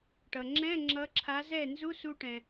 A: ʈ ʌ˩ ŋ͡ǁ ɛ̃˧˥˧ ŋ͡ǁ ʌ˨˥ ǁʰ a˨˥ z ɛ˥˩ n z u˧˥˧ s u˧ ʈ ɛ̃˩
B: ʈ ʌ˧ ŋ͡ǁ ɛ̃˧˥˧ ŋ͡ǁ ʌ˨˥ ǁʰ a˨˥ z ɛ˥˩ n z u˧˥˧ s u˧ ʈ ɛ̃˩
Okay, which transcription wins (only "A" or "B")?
A